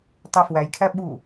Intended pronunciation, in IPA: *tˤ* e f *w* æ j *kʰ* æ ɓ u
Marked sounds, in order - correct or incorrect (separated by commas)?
correct, correct, correct